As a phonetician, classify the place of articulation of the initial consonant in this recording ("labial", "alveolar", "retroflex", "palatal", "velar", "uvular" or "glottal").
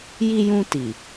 palatal